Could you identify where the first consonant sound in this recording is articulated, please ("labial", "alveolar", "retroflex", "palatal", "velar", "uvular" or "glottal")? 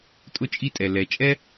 alveolar